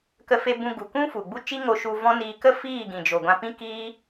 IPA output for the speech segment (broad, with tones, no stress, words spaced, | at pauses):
kə˧fe˧bũ˧ ɡu˨kũ˦fu˨ɡ͡bu˦ t͡ʃi˦ŋo˧ ʃu˧vɔ̃˦niː˧ kə˦ fiː˦˨ɡĩ˨d͡ʒo˨ ɡʷã˧pĩ˦kiː˦